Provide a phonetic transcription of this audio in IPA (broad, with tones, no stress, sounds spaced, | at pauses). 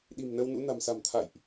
ɗ i̤˨˩ m n ə˧ w n ṵ˧˥ n a̤˨˩ m s a̤˨˩ m t̪ʰ a̰˧˨ j ʔ